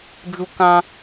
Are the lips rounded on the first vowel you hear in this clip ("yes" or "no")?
yes